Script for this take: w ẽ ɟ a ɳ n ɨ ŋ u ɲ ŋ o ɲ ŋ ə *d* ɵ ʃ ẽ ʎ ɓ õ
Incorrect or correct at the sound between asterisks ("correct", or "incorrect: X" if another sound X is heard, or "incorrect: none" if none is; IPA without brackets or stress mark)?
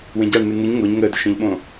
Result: correct